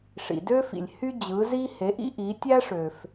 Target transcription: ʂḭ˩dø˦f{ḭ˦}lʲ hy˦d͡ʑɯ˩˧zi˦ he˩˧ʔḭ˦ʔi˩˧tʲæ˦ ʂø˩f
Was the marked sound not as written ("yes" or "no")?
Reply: yes